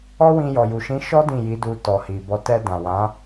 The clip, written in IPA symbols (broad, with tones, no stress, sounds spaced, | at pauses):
ɔ˦ w ĩ˧ j ɔ˨ j u˨ ʃ ĩ˨˦ ʃ ɔ˦ d ĩ˦˨ j i˨˦ d u˧ t ɔ˨ h i˨ b ɔ˧ t ɛ˧ d ã˨ w ã˨˦